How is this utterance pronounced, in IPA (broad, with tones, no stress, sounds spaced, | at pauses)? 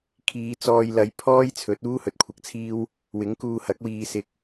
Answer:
kʰ iː˨˧ t͡s ɔː˧ j l ɐ˨˧ j pʰ ɔː˥ j t͡sʰ ɵ˨˥ t̚ uː˥ h ɵ˨ t̚ kʷʰ ɐ˨ k̚ t͡sʰ iː˥ w | w ɪ˨˥ ŋ k uː˧ h ɐ˨˥ k̚ w iː˧ s ɪ˧ k̚